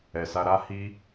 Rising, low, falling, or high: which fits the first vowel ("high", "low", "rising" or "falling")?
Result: low